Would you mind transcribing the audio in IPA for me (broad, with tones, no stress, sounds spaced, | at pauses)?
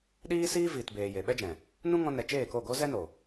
ɗ iː˦ s iː˦ v iː˨ t b eː˨ j e˨ ɓ ɛ˦ d͡ʒ ɛ̃˨ | n ũ˦ ŋ ɔ̃˧ n ɛ˨ t͡ʃ eː˦˨ k o˦˨ ɡ o˦ z ɛ˦ n o˨